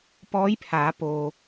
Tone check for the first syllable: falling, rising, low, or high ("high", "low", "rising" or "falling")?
rising